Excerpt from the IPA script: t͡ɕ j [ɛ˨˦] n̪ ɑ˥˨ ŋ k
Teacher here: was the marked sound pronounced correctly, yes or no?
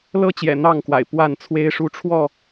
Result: no